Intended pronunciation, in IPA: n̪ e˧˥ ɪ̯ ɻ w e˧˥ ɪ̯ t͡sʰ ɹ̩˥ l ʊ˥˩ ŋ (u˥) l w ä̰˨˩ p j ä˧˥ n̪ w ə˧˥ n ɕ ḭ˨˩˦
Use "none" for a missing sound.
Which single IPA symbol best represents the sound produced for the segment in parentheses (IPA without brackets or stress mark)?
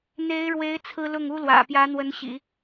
u˥